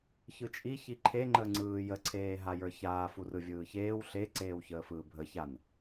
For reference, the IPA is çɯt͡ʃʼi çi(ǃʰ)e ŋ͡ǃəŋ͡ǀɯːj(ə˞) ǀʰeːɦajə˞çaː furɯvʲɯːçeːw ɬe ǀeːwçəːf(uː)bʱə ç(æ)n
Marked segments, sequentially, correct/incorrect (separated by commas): correct, incorrect, incorrect, incorrect